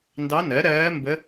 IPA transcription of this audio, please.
ndɑ˧˥nɜ˩˥ ɾɜː˧˥mbə˧˥

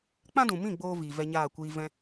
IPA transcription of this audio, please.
k͡pã˦dũ˨mĩ˦˨ ɡ͡boː˦ viː˨ vɛ˧ɲaː˦˨kʷiː˧ vɛ̃˧

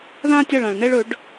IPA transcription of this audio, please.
ðã˥tʲa˦˨ɭã˨ɭ nɛ˥ɭɵ˨˥ɖ

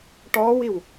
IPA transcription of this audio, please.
ʈɔːwiw

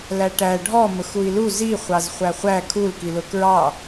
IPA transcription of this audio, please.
læʈæ ɖʱɔ mʊxui̯lu zi χʷɑzχʷæχʷæ kʰulkilʊ kɹɑ

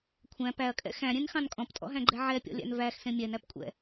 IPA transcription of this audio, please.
kʷʰæ̃ pæɐ̯kʼɛ̰ xæ̃ɾʲẽnxɑ̃n kʼɔ̃ptʼɔ̰ɦæ̃ɡ͡ǃɛ ʕɛpʲɔ̰lʲæ̰n væxsẽ mʲɛnæpkʷʼɛ̰

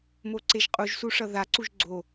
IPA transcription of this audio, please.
moǀeʒqʼuʒ suʂʌða ǀuʒɡ͡ǀo

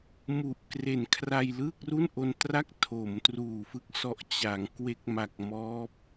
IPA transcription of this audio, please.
mu˨˩ʔ kre˩˦n kʰra˧jlɯː˥˩k̚ru˥˩nʔo˧n tra˥˩k̚ tʰo˩˦mtruː˨˩ fɯ˦˥k̚sɔ˨˩ʔ t͡ɕa˩˦ŋ kwe˦˥k̚ma˨˩k̚ mɔː˦˥p̚

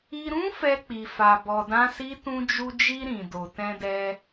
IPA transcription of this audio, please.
i˧ɾũ˦ fɛ˧k͡pi˨fa˨ bɔ˧dã˦si˦ tũ˧d͡ʒu˧d͡ʒi˧ ɾĩ˨ do˨tɛ̃˧dɛ˧

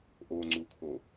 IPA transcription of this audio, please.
ʔoŋ͡ǀukʰo

